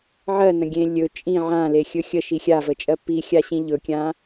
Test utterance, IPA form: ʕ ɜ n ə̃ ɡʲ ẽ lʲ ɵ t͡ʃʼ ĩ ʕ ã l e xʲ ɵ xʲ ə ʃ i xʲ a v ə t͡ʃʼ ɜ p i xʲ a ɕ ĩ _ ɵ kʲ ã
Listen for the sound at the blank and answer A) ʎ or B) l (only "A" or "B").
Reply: A